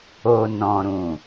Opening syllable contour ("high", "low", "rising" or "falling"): low